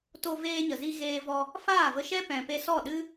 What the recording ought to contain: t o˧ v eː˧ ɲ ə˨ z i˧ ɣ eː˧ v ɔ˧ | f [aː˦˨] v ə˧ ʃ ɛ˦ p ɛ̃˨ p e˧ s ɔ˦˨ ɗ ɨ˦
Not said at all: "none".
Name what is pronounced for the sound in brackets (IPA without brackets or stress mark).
aː˦˨